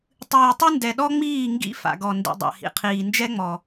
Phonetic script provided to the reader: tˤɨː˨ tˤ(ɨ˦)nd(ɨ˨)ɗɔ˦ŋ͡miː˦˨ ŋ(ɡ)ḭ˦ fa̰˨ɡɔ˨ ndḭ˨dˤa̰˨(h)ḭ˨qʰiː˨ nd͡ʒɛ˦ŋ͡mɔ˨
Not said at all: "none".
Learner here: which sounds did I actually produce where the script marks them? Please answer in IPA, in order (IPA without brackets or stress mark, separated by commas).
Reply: ɨ˦, ɛ˨, ɡ, h